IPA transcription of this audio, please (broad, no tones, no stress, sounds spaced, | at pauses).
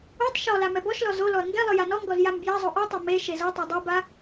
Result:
u tˤ ʃ ɔ l a m ɛ b ɔ ʃ l ɔ z o l ɔ ɐ̯ ŋ ɡ ɛ lˠ ɯ j a n ɔ ŋ ɡ ɔ z j a m b j a zˤ o ʔ u tˤ e m e ʃ e z ɤ tˤ o dˤ i b a